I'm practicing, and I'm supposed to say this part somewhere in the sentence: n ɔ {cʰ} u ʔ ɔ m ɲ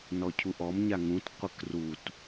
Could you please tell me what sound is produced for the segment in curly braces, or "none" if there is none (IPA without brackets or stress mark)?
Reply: cʰ